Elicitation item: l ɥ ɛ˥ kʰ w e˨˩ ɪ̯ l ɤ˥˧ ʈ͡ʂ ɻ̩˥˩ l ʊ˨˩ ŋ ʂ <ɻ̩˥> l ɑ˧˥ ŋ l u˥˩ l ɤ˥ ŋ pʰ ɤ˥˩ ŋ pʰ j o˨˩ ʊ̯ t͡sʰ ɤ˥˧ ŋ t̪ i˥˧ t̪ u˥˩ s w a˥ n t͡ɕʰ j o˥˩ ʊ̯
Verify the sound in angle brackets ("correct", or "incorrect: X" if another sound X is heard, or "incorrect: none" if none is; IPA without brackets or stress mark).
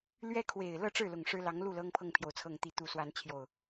correct